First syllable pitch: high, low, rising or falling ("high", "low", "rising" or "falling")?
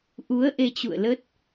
rising